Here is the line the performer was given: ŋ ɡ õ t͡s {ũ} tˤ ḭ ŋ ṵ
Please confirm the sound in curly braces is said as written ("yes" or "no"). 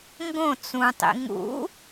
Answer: yes